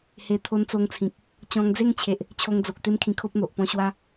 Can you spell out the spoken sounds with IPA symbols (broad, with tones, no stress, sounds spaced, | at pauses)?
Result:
h e˧ t̪ʰ o˧ n t͡s o˧ ŋ t͡sʰ ĩ˨ k̚ | t͡ɕ ɔ̃˧ ŋ d͡z e˥˧ ŋ t͡ɕʰ e˨ ʔ | t͡ɕʰ o˧ ŋ d͡z o˨ k̚ t̪ e˦ m kʰ ĩ˧ kʰ o˦ p̚ n̪ o˨ ʔ p ɔ̃˧ ɕ w a˦